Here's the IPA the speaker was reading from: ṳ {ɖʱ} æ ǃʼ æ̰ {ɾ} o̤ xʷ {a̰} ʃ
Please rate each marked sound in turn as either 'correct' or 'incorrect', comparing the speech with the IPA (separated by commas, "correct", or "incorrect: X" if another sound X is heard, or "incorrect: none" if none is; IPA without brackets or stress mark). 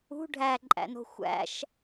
correct, incorrect: n, incorrect: æ̰